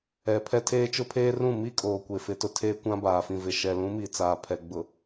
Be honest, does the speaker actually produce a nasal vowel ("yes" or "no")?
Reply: yes